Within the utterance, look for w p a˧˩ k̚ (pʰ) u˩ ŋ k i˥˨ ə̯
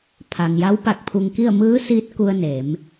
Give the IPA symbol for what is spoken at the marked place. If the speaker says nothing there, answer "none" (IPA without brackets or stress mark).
pʰ